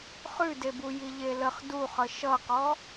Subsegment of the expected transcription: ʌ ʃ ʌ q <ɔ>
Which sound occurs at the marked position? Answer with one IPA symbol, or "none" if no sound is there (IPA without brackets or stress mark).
ɔ